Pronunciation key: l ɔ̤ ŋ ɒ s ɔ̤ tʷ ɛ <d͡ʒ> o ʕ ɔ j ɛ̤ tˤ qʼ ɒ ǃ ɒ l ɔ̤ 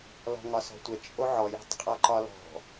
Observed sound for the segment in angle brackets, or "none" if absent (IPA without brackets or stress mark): t͡ʃʼ